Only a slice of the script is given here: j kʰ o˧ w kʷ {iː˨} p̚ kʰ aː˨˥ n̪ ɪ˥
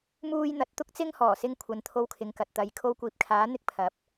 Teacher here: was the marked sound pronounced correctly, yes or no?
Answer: yes